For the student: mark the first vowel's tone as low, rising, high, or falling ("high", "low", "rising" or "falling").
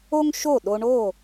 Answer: high